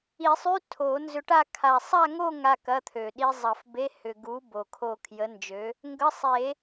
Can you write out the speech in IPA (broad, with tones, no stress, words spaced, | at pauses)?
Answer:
i˨˩˦sˤy˧˥˧ tʰo˨˩˦nzʏ˧ʈa˥˧ kʰa˨˩sˤa˥˧ŋo˥˧ ŋa˥˧kɐ˧˥˧t̪ʰø˨˩ ɗi˧zˤɐ˨˩˦fbe˧˥˧ hʏ˨˩ɡu˨˥ bo˨˩kʰo˥˧ kʰjə˨˥nd͡ʒø˨˥ | ŋɡə˧˥˧ sˤe˨˩˦